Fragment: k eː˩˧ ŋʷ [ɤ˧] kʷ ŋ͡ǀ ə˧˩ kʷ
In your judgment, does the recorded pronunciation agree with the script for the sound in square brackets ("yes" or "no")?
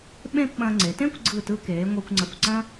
yes